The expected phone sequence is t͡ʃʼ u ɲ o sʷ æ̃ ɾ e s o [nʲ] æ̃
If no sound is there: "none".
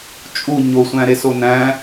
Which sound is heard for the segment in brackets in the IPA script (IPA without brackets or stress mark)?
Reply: n